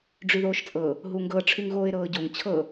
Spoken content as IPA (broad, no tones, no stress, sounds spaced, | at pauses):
ɖ͡ʐ y ð oː ʃ t͡sʼ ɤ | ɦ u ŋ ɡ ɤ ʈ͡ʂʰ y ŋ ɣ oː ɪ̯ ɾ ɤː ɟ o ŋ t͡ɕʰ ɤ